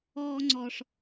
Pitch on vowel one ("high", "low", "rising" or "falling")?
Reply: high